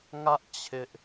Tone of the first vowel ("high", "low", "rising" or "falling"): high